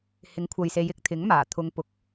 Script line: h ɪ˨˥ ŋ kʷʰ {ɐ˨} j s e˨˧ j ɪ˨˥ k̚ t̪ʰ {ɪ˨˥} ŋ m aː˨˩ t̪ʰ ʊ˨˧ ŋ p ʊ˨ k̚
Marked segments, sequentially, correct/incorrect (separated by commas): correct, correct